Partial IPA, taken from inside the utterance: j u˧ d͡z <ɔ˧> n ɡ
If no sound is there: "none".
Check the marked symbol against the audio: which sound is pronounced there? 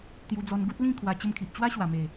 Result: ɔ˧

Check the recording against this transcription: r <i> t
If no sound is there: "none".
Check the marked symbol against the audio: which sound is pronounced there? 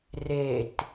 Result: e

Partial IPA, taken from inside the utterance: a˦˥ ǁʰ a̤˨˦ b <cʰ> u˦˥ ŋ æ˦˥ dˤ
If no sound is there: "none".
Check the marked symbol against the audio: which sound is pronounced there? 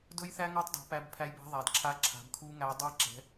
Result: kʰ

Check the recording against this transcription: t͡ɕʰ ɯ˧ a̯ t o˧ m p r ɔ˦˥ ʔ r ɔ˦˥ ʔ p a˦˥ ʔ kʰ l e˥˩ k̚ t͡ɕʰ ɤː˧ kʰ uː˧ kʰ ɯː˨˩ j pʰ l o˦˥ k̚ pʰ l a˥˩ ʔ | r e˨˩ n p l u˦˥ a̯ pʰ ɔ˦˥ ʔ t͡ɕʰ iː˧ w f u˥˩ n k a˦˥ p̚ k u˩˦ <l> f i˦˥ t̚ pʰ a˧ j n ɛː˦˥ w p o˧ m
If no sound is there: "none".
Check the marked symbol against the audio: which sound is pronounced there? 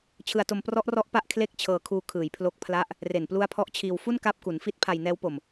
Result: n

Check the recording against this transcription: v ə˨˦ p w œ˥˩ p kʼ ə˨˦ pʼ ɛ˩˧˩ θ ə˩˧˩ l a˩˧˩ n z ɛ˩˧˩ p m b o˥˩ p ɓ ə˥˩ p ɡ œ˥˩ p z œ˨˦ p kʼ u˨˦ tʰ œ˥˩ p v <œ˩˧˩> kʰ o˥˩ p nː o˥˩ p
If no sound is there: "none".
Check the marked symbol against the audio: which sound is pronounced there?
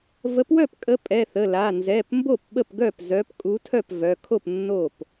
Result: œ˩˧˩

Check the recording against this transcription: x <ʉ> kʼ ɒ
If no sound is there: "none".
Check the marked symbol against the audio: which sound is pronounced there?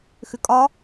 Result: ʉ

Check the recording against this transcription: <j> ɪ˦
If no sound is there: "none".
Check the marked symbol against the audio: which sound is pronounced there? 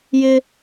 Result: j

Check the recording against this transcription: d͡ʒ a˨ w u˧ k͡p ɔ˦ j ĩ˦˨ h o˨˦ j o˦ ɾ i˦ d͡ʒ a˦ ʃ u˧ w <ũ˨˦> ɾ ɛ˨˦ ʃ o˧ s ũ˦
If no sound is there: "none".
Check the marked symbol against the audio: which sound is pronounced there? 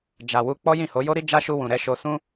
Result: ũ˨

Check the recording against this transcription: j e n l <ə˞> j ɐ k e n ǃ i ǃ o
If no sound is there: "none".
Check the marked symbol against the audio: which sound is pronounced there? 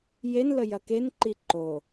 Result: ə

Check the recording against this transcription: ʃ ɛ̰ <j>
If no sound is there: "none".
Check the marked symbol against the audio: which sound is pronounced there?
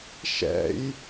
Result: j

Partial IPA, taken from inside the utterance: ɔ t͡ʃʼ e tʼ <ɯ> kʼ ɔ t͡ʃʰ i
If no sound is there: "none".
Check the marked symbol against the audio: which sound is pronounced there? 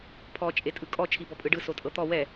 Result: ɯ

